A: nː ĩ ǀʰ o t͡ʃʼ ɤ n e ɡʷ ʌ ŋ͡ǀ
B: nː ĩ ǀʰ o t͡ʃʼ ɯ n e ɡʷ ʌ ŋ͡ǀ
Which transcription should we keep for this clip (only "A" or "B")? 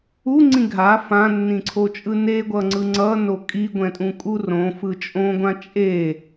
B